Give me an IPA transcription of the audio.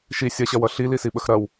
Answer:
ʃ i sʲ ɐ ɕ ɐ w ʌ ɬ i l i s i ɓ ə x ɾ ɐ w

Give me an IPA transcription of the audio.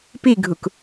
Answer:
p i ɡʱ u k

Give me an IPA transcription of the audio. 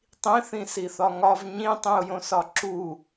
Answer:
tˤ ĩ θ ĩ s i θ ɒ ŋ ɒ v ɲ ĩ tˤ ĩ ʊ̯ j õ s ɒ ǁ u

